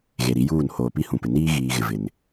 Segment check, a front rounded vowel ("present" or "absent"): absent